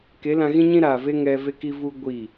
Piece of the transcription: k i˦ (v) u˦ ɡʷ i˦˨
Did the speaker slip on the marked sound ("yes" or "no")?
no